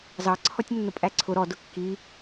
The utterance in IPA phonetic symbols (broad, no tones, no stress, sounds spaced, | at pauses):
z ɑ ǀʰ ɔ tʲ nː ʊ pʼ æ ǀʰ ʊ ɾ ɔ d ʊ kː i